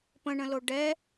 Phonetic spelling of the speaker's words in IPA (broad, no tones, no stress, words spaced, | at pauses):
pə̃ɳə̃lo ɖɛ